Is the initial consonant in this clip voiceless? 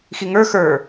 yes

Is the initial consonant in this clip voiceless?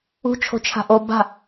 yes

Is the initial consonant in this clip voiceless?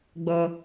no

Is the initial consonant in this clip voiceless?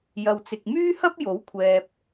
no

